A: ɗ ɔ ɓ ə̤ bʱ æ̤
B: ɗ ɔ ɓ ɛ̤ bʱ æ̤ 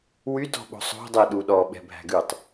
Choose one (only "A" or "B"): B